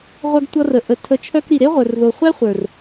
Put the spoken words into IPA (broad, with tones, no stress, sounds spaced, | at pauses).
ʁʷ œ˧ ɡ tʷ ʌ˧ r ə˨ ʔ ə˨ tʰ ə˨˦ t͡ʃʰ œ˧ k ɾ i˨ ɾ e˦ ʁʷ œ˨ r ð o˨ χʷ æ˦ χʷ ə˞˨ r